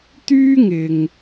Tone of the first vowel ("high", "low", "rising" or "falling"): high